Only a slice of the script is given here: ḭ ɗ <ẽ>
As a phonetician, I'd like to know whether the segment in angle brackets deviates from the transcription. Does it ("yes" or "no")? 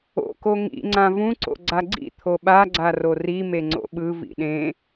no